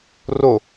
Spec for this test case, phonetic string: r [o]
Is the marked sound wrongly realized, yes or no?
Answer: no